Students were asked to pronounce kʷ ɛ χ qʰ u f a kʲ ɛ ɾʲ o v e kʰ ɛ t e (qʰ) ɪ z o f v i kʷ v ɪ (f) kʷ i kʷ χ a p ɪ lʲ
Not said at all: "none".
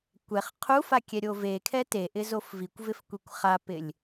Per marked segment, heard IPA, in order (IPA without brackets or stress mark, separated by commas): ʔ, f